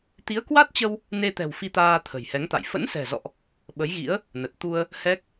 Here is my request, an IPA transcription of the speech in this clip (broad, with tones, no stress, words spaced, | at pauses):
t̪i˨˦ə̯kwa˦˥t̚t͡ɕə˧w | ne˧t̪ɛ̤˨˩w fi˧t̪aː˧ t̪ʰə̤˨˩jhɛ˨˦ŋt̪a̰˧˨j fə̰˧˥nsɛ̤˨˩zɔ̰˧˨ʔ | ɓə˨˦jɣḭ˧˥ə̯ | nə˨˩t̚ t̪u˧ə̯ | hɛ˦˥k̚